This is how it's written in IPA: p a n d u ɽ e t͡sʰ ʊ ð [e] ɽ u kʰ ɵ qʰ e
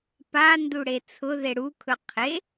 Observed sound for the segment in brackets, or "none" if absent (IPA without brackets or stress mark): e